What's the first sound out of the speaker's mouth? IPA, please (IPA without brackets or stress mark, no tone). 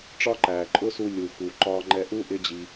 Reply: ʈ͡ʂ